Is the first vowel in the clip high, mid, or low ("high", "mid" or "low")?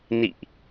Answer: high